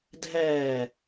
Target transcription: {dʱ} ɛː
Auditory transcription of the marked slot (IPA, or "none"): dʱ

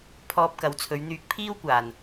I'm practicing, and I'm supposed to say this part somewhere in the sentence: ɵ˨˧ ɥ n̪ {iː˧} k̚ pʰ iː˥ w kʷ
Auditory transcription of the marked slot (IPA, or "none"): yː˧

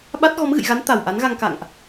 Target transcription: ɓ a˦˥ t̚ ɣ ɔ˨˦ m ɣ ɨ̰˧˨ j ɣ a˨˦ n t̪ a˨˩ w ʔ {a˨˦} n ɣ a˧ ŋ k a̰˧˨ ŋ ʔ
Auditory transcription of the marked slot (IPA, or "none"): a˨˦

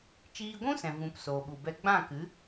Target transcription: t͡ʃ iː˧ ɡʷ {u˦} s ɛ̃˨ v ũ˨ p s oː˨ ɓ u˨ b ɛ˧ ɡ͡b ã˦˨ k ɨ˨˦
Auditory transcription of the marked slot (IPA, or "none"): ũ˦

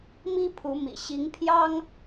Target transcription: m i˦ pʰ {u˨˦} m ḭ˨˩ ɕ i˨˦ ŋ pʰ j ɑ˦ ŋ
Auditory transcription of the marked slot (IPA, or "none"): u˨˦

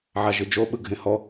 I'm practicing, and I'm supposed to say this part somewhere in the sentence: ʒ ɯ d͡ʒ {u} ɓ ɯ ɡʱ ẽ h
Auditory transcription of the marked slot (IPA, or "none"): o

